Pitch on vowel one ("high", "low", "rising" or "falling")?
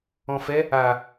low